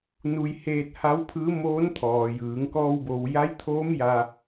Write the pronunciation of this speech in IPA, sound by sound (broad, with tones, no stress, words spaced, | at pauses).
nu˧jheː˧t̚ ha˧˥wpʰɯː˧˥ moː˧˥nt̪ʰɔː˩jɯː˩˧ŋ kɔː˧wbo˩wja˧˥jt̪ʰoː˧˥m ja˧